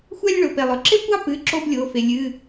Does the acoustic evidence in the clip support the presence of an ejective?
no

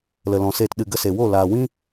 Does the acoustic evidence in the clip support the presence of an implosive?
yes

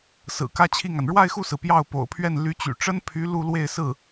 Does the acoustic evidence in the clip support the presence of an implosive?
no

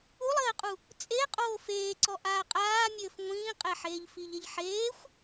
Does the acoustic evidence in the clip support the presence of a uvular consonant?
yes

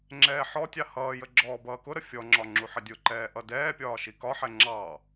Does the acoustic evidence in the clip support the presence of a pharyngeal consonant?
yes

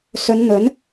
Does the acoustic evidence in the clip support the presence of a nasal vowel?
no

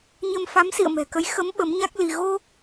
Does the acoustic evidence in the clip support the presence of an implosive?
yes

